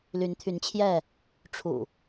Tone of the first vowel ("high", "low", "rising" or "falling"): rising